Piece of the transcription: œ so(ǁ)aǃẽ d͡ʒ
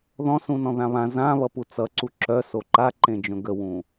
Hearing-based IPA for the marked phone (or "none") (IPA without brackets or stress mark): ǃ